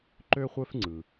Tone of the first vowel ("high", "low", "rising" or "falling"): high